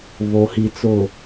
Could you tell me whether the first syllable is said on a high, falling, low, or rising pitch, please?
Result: low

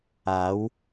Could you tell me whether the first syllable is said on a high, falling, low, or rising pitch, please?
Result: rising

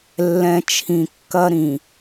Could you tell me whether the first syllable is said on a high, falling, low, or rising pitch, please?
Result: low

